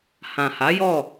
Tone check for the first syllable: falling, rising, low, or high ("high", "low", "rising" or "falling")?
low